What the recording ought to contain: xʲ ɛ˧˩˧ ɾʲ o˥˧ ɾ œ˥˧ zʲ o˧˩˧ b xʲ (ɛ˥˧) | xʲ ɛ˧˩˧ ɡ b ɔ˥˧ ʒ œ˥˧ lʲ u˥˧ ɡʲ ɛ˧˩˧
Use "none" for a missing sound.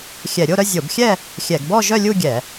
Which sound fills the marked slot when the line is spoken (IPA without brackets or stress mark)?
ɛ˥˧